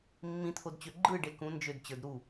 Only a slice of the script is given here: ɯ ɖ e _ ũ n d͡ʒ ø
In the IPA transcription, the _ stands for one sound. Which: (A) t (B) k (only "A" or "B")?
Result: B